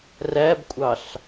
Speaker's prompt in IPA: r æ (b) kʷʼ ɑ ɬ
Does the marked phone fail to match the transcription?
no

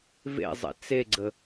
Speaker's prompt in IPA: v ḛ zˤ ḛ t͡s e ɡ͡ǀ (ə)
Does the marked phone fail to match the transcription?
no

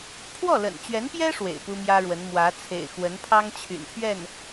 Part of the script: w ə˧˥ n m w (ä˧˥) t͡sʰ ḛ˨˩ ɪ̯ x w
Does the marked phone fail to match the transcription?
no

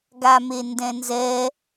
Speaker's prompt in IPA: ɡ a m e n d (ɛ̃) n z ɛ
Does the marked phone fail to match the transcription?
no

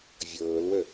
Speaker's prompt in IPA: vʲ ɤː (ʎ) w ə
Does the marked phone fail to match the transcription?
yes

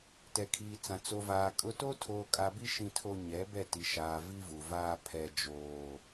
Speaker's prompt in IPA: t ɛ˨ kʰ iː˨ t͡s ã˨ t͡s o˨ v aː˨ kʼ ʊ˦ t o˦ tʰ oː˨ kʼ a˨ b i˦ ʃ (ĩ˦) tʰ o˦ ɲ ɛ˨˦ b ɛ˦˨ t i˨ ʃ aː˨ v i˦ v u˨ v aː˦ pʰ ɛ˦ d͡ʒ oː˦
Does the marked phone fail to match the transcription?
no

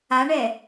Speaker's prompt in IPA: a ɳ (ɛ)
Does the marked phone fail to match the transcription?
no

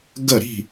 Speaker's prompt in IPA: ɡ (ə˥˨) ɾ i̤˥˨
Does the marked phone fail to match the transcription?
no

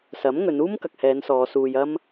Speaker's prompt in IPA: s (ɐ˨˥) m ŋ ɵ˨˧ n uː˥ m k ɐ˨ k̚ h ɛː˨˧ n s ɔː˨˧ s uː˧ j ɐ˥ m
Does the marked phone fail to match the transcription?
no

